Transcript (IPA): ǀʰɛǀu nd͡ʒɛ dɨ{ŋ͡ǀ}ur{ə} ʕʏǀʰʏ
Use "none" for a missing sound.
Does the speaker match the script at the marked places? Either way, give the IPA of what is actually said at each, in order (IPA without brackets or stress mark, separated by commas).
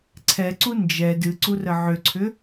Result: ǀ, ə